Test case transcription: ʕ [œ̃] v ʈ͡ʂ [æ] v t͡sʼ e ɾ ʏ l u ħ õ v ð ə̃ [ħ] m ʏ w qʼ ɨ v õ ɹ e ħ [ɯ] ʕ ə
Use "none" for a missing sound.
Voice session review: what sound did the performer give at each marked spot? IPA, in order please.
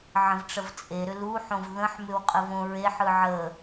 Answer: ə̃, ə, ħ, ɯ

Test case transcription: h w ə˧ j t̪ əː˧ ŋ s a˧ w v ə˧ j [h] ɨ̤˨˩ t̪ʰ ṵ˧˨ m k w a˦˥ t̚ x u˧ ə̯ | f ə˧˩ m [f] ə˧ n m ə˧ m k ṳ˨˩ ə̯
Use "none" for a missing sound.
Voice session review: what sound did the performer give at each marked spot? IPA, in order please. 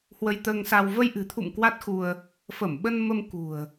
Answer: ʔ, ɓ

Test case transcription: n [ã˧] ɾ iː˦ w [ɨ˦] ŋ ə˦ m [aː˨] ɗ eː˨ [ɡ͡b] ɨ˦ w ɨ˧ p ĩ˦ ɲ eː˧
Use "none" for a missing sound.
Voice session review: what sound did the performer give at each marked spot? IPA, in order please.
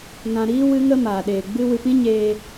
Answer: ã˧, ɨ˦, aː˨, ɡ͡b

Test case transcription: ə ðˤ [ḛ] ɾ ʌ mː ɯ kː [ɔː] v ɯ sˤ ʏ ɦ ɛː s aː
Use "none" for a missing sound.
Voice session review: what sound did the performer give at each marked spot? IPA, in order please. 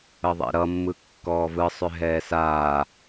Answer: ḛ, ɔː

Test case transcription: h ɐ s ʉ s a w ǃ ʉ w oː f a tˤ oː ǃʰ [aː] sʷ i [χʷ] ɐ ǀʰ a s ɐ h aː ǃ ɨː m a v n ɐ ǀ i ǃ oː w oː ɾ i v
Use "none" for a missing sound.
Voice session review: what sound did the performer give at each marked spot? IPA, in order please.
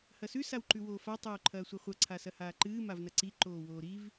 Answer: ɐː, χʷ

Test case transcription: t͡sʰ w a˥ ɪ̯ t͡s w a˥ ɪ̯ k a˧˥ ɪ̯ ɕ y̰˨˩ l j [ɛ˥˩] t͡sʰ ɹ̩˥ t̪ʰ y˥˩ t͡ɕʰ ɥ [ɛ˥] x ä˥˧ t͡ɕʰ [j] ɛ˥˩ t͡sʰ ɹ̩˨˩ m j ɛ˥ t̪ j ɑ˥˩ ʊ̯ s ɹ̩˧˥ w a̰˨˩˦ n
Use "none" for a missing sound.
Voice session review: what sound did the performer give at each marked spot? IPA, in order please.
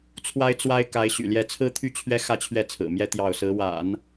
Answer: ɛ˥˩, ɛ˥, ɥ

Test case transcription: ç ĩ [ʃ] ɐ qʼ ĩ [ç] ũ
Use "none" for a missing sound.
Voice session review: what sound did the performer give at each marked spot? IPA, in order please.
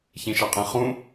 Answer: ʃ, χ

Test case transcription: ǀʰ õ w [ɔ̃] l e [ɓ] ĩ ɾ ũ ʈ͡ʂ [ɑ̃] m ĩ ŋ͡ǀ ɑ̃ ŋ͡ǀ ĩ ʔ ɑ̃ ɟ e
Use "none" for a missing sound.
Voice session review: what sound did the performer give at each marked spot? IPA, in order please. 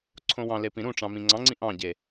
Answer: ɑ̃, p, ɑ̃

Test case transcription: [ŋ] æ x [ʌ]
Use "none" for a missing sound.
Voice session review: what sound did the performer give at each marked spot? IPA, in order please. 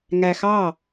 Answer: ŋ, ɑ

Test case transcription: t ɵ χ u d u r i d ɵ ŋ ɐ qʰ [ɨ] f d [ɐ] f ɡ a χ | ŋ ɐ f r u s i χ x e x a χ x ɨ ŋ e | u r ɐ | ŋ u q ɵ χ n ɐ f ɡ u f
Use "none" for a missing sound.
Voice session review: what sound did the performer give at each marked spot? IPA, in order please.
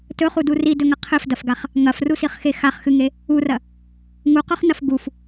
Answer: ɨ, ɐ

